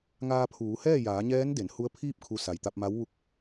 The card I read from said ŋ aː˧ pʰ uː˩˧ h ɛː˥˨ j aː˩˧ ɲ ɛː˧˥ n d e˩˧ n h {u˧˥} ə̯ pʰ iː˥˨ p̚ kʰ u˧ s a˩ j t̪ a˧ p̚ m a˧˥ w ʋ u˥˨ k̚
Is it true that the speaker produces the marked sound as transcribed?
yes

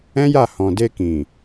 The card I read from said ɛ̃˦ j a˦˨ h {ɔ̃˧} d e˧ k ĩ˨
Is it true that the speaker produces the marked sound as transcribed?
no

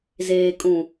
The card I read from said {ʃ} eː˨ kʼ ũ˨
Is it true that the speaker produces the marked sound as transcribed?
no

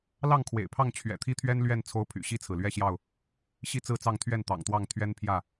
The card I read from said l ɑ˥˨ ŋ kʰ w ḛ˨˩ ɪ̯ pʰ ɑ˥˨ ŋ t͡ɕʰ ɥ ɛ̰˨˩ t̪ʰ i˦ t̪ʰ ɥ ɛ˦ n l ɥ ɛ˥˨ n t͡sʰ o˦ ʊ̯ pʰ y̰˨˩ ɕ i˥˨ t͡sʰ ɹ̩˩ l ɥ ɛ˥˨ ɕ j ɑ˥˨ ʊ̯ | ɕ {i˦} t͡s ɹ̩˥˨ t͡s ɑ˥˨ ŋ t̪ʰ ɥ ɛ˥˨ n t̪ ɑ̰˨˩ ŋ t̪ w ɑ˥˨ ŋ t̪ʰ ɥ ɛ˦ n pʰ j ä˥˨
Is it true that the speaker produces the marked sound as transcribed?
no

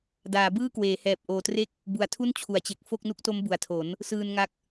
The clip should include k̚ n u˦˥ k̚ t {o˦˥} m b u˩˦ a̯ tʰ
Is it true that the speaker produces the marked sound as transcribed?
yes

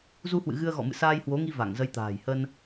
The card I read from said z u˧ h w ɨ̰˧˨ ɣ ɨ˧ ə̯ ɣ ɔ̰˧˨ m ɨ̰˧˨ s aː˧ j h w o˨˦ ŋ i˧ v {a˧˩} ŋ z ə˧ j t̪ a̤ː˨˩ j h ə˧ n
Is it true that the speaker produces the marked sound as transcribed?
yes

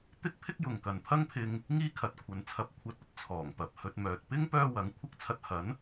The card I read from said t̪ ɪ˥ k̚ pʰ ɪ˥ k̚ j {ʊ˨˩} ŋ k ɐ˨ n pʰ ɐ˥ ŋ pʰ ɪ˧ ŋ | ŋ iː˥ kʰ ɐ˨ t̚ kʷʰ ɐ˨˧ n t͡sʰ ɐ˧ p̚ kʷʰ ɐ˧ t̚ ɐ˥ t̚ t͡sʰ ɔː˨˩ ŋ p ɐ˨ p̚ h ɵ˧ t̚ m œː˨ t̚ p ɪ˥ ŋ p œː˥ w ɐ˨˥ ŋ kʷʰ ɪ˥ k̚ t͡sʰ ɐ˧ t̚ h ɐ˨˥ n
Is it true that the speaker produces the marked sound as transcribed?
no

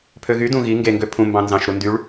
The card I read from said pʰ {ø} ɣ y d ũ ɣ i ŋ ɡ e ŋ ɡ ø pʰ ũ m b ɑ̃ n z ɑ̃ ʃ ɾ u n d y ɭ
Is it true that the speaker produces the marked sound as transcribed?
yes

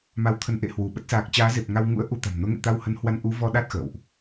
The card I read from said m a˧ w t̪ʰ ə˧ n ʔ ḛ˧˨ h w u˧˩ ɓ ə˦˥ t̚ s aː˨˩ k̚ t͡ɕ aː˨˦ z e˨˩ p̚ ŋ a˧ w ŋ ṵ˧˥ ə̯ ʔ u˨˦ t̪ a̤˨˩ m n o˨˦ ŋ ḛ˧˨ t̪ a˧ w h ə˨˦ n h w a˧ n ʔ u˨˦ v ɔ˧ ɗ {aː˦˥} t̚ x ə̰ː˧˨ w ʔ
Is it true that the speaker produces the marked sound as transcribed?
no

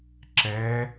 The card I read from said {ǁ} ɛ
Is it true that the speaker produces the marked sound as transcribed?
yes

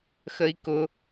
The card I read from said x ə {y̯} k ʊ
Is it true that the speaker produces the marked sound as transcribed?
no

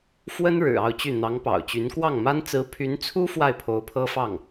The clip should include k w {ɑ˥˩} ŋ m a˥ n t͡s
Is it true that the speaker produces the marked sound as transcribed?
yes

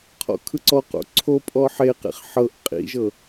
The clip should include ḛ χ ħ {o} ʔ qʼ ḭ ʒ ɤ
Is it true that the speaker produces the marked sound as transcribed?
no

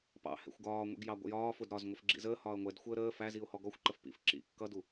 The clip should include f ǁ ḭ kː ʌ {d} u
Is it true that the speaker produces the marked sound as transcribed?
yes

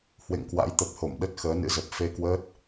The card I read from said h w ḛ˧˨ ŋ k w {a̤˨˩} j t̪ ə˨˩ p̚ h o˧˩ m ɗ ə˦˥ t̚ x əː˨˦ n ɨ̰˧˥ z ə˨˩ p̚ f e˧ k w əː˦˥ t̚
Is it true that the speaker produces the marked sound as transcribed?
no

